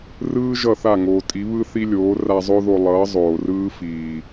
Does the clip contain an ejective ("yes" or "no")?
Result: yes